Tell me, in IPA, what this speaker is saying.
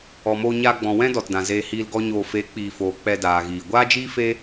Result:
ɔ˨ m oː˧ ɲ aː˧ ɡ͡b ɔ̃˨ w ɛ̃˦ d ɔ˨ t d ã˨ z eː˧ h iː˧ l ɡ ɔ˦ ɲ oː˧ f e˨˦ k͡p iː˨ f oː˨ k͡p ɛ˧ d aː˨ ɣ iː˨ ɡʷ aː˦ d͡ʒ iː˦ f e˦

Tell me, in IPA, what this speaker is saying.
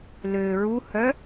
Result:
l ø ɹ u h œ

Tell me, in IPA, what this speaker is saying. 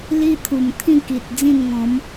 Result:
l i˦ t̪ʰ u˨˩ m t̪ʰ ĩ˥˧ k i˨ t̚ d͡z ĩ˥˧ n ŋ ɔ̃˨˦ m

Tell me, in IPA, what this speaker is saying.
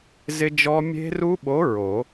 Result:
z ɪ˦˥ d͡ʒ ɔ˦˥ mʲ e̤˦˥ r u˦˥ ɓ o˨˥ ɹ o˨˩˦

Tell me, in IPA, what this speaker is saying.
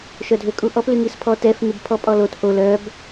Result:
ʃ œ dʱ ø kʼ u ʔ ɔ p l y ŋ i s pʰ ɔ t ɛ f ŋ y b pʰ ɔ pʼ ɔ l o t ʔ o l œ b

